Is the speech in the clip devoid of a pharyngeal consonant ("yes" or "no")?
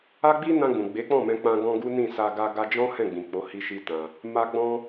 yes